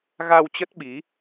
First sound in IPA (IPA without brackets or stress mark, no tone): ɣ